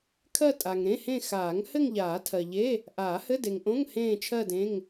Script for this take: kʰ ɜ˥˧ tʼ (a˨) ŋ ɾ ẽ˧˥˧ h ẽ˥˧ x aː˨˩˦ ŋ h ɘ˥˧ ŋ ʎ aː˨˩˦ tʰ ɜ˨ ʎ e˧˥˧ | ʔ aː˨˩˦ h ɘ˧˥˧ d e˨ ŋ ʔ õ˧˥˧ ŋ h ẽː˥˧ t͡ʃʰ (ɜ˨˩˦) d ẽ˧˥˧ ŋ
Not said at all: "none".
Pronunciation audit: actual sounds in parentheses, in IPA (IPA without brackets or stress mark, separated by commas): a˨, ɜ˥˧